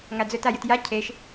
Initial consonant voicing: voiced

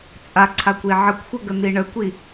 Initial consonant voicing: voiceless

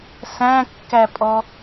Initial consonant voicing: voiceless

